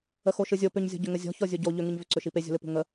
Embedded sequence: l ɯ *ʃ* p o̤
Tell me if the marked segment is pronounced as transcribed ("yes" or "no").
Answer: no